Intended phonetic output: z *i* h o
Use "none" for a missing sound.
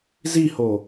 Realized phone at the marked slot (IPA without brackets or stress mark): i